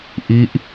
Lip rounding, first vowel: unrounded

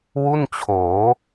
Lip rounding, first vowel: rounded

